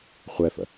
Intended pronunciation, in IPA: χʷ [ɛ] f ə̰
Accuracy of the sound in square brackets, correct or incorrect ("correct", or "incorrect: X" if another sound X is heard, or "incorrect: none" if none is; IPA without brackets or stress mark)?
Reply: correct